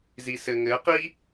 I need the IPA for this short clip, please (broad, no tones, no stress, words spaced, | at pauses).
zisɘŋɘ qi